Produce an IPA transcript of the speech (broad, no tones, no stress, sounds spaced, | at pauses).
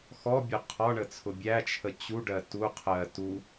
x ɔ bʲ ʊ qʰ ɒ ɳ ə t͡sʰ ʊ bʲ æ t͡ʃʰ ə t͡ɕ u ɖ ɜ t u qʰ ɜ t u